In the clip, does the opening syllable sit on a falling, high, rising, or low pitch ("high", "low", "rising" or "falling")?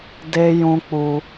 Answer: high